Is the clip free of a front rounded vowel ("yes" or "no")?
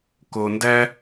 yes